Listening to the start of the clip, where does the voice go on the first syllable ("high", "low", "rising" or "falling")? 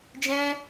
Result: high